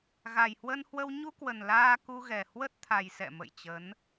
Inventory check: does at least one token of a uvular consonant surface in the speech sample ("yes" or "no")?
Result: no